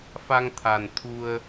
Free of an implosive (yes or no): yes